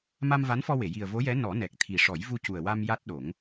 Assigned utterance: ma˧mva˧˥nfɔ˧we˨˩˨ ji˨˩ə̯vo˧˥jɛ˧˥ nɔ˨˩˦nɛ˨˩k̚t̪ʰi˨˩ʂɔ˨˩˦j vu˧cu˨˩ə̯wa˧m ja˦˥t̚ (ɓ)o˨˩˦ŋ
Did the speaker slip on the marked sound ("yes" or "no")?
yes